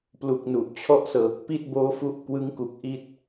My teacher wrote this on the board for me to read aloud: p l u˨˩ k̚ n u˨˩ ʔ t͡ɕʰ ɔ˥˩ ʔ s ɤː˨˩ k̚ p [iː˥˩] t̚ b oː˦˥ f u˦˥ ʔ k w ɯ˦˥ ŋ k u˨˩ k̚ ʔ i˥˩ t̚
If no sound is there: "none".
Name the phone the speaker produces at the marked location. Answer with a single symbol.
i˥˩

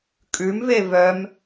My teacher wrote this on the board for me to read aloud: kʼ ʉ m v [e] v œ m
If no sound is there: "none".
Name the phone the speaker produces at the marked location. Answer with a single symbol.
e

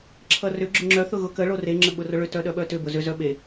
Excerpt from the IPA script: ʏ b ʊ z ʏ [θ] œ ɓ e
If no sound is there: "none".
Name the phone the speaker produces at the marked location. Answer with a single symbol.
z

